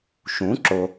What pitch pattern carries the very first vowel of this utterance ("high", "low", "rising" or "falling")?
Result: rising